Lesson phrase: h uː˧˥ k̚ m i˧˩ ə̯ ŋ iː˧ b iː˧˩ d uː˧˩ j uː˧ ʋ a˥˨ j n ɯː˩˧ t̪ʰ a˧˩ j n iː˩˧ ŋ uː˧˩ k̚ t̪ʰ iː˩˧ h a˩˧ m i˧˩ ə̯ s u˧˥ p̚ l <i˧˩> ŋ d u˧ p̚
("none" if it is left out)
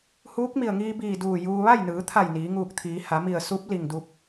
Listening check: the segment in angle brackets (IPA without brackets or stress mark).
i˧˩